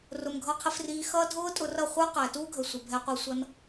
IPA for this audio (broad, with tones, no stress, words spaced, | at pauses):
rʊ˨mɡʱʌ˧ qʰɪ˧friː˧xʌː˦ dʱʊː˦ tʼʊ˧rʌ˦˨χʷə˞˦ qæ˨tuː˦ɡʱə˨sʷɪ˨ bʱɛ˧qʷi˧sʷʌ˦n